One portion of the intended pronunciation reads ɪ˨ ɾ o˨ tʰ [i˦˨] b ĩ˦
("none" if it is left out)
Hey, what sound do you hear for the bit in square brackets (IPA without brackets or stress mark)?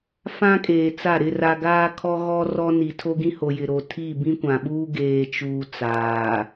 i˦˨